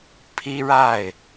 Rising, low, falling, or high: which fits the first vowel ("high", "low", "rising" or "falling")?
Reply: high